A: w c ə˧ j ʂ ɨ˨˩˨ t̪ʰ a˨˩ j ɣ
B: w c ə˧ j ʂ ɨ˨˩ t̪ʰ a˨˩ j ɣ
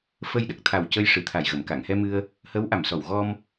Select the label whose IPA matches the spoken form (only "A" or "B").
B